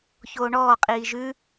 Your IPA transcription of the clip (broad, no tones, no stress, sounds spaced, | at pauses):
ç oː ɳ ɔː qʼ iː ʒ ʉ